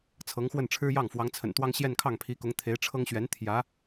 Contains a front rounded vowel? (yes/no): no